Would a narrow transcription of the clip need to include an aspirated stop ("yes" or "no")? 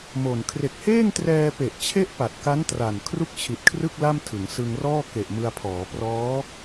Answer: yes